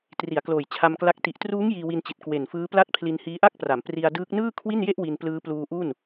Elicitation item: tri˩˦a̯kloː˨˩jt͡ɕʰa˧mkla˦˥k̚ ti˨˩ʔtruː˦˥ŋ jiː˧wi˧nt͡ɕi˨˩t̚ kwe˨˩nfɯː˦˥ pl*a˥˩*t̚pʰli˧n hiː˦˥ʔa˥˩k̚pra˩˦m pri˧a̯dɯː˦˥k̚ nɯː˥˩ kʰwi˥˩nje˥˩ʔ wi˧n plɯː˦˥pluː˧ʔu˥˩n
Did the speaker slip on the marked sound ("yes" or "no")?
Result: no